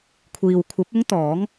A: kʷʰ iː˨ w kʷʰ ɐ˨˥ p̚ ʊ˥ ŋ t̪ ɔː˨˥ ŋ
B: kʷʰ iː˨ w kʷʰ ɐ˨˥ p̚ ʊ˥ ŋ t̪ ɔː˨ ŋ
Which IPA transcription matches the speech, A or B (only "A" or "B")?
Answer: A